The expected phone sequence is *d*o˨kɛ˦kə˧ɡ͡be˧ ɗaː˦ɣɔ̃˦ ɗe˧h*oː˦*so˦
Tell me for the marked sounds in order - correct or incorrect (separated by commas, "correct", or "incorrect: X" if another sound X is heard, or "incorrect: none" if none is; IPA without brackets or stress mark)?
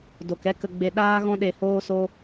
correct, correct